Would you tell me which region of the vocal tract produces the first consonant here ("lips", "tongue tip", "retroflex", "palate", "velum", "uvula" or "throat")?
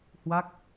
throat